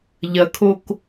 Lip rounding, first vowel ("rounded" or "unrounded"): unrounded